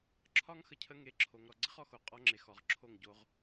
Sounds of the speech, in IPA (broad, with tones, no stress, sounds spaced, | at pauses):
ǁʰ ɒ˦ ŋ x ə˨ cʰ ə˦ ŋ e˨ ǁʰ o˨ ŋ ɾ ɔ˨ ɡ͡ǀ ə˦ χ ɔ˨ x o˨ qʼ ɔ˦ ŋ͡ǁ e˨ x ɔ˨ ʁ ǁʰ o˦˨ ŋ ɟ o˦ ʁ